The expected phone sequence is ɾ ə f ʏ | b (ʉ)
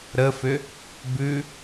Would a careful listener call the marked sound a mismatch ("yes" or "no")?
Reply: no